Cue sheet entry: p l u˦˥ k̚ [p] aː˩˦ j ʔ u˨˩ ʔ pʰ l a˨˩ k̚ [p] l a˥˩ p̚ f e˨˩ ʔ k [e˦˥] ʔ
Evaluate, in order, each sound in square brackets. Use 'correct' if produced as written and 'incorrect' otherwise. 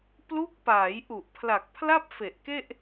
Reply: correct, incorrect, incorrect

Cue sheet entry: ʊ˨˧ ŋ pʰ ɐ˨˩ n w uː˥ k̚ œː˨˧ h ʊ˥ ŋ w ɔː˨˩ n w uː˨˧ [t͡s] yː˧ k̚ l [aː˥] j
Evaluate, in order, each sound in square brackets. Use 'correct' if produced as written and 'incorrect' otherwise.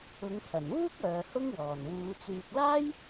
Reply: correct, correct

